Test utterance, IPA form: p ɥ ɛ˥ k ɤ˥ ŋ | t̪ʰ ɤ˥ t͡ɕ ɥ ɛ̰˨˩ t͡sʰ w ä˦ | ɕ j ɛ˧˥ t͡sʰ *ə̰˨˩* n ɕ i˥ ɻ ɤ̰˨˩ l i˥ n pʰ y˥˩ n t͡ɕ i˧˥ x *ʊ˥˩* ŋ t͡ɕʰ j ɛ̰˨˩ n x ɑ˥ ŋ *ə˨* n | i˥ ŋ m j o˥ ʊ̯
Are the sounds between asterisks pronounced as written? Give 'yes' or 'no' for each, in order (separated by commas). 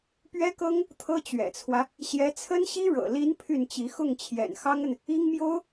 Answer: no, yes, yes